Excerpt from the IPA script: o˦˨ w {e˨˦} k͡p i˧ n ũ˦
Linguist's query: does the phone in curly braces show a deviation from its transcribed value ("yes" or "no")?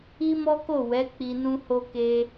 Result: yes